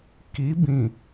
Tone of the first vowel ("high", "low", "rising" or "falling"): rising